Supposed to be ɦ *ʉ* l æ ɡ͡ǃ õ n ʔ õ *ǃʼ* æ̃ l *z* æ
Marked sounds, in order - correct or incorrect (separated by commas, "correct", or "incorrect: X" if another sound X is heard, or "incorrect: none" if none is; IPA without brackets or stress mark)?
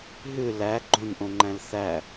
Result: correct, incorrect: ŋ͡ǃ, incorrect: θ